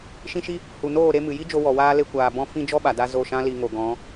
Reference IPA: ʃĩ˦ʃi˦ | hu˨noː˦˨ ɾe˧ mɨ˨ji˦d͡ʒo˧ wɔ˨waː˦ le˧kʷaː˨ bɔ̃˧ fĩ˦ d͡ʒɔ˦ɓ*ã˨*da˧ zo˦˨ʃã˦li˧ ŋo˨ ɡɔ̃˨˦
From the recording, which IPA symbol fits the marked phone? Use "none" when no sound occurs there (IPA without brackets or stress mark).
a˨